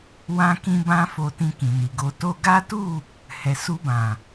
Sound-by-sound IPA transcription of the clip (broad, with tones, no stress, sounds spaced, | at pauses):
w ã˦ k ĩ˦ b ã˦ f o˧ t ĩ˧ k ĩ˨ n i˨ ɡ o˧ t o˧ ɡ a˦ t u˦˨ | h ɛ˨ s u˧ b ã˨